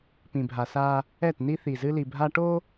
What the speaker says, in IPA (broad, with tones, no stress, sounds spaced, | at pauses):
p ĩ˨ bʱ a˨ s a˦ | ɛ˦˨ t n i˦ θ i˨ z ɨ˦ l i˨ bʱ a˦ ʈ o˦